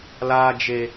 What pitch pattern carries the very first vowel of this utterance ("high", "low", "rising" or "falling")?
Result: high